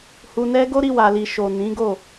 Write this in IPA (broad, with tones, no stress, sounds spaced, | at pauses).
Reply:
h u˧ n ɛ˦ ɡ o˦ ɾ i˧ w a˨ l i˨ ʃ o˨ n ĩ˨˦ ɡ o˦˨